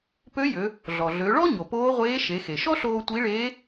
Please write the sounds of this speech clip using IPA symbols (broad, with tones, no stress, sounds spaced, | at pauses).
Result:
p ø˧˥ j ø˩˧ | ɮ ɔ˩ ɮ ø˩˧ ɭ ɔ˥ ɲ o˩ p oː˧˥ ʁʷ eː˧˥ ʃ e˩˧ x e˩ ʃ ɔ˥ ɬ oː˧ tʷ i˧˥ ɭ eː˧˥